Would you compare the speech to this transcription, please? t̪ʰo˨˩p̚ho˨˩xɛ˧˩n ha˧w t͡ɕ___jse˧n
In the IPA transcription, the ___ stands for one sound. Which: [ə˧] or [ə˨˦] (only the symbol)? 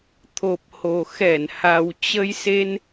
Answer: ə˧